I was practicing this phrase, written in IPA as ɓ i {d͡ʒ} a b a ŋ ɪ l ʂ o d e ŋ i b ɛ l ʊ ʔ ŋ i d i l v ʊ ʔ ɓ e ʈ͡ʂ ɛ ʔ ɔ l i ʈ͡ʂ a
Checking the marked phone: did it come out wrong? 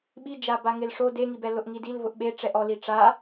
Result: no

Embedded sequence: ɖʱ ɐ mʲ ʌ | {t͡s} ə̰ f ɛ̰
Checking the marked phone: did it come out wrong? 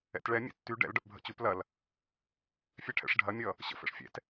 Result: yes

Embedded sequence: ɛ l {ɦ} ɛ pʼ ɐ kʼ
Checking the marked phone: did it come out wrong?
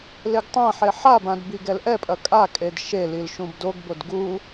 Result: yes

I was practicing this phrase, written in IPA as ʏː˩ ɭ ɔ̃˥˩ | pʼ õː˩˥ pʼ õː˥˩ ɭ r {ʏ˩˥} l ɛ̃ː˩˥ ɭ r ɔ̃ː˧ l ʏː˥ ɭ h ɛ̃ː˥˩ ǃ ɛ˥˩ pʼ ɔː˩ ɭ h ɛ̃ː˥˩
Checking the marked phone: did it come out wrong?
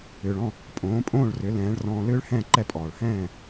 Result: no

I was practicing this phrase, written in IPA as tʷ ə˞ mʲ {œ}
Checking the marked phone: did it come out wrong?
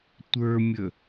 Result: yes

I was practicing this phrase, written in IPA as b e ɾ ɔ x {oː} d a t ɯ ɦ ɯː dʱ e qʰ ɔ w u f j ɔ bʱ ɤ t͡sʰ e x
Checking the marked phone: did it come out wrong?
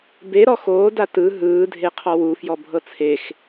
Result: no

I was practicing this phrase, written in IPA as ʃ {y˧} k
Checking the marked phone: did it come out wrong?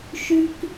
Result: no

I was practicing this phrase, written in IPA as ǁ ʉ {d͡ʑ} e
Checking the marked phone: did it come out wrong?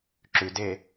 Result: yes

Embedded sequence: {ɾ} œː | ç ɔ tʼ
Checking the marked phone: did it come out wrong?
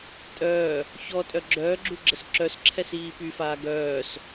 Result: yes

